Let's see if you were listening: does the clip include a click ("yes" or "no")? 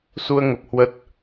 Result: no